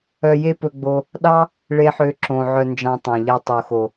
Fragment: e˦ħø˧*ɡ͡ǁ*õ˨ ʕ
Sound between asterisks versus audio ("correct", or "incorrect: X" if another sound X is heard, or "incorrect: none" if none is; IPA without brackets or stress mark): incorrect: ǁ